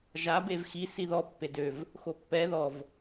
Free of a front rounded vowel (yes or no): no